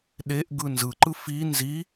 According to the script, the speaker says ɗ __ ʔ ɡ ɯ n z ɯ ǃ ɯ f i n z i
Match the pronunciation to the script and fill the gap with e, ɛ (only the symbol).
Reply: e